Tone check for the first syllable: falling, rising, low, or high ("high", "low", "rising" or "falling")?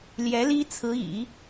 rising